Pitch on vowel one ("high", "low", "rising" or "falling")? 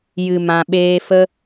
low